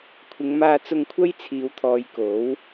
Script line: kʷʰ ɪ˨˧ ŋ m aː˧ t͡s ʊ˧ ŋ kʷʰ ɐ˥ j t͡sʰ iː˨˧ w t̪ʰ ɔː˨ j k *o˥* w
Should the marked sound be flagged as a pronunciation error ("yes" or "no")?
yes